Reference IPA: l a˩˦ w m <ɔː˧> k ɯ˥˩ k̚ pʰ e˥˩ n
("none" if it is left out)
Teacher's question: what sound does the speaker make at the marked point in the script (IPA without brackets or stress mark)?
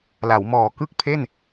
ɔː˨˩